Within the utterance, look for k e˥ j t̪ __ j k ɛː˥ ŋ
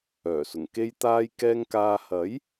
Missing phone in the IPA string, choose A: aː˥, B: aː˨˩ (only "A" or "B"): A